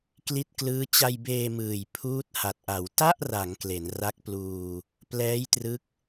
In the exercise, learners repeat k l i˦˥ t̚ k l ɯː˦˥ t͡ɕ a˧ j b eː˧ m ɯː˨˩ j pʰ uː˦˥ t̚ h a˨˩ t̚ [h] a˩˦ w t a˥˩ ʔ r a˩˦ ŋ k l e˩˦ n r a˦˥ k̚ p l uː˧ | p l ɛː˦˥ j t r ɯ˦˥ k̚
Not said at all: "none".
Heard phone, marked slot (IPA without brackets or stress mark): ʔ